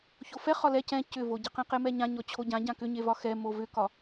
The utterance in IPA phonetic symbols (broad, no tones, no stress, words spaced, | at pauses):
çofɛ χɒlɛ cɛ̃ cʏvoɟɛ qɛ̃qemɛɲã ɲɔt͡ɕʰoɟã ɟãkʏɲevɒ xɛ movʏkɒ